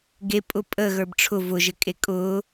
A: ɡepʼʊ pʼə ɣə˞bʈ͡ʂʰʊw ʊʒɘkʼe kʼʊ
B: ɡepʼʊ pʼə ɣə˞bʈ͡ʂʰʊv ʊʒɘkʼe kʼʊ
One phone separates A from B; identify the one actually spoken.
B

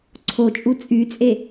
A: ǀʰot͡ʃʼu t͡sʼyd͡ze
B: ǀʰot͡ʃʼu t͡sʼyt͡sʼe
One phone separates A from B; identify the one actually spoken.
B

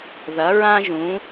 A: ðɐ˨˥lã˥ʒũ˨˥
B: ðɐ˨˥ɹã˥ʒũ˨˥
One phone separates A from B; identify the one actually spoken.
B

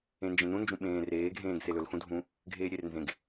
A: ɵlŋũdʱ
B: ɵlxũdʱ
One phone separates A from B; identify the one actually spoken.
B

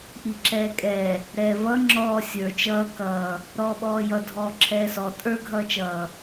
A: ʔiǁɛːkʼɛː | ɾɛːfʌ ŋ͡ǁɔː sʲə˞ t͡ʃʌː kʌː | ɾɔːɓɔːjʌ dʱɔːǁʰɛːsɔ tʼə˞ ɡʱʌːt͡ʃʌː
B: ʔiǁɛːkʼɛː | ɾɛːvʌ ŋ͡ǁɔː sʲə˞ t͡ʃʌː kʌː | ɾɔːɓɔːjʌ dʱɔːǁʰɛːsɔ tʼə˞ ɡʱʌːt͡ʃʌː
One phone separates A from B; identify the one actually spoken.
B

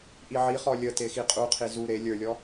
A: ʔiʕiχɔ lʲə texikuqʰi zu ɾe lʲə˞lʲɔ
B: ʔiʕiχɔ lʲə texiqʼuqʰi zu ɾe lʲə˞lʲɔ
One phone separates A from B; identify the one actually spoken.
B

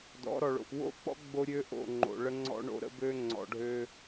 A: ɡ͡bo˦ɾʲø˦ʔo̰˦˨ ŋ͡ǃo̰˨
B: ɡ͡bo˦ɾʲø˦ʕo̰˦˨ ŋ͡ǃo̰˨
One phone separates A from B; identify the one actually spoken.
A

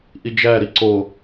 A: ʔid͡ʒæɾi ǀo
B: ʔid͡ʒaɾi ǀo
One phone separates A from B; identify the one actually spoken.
A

